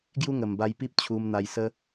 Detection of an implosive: absent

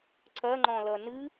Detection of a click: present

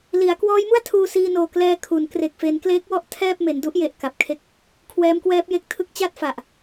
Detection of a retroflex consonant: absent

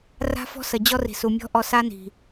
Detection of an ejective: absent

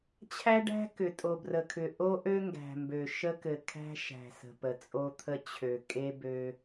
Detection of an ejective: present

